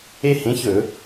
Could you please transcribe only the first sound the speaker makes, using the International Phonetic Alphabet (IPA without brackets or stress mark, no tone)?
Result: e